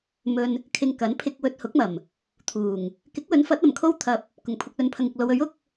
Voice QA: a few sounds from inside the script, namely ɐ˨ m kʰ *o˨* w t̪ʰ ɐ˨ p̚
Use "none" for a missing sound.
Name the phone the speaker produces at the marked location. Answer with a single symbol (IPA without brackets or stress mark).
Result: o˥